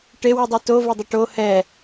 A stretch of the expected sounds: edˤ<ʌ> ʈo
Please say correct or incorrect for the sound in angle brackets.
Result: correct